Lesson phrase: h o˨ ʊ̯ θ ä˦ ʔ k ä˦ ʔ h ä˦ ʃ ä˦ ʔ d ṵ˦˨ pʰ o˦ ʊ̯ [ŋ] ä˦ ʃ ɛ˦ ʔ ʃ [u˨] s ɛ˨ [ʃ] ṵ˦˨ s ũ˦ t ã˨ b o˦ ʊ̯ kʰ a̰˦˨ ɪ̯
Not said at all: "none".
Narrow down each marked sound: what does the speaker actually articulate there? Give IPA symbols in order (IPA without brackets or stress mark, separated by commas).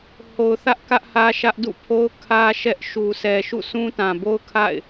kʰ, u˨, ʃ